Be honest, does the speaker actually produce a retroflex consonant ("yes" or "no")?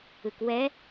no